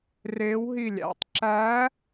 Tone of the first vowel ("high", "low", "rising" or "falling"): rising